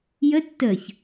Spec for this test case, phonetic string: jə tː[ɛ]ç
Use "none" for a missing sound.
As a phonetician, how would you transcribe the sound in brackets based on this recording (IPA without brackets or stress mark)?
ə